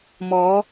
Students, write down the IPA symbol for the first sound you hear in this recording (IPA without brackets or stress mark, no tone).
m